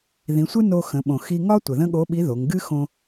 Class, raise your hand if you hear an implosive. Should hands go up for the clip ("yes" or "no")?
yes